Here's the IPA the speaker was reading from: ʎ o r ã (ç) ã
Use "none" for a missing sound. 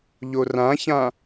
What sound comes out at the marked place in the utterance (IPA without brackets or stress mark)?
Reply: ç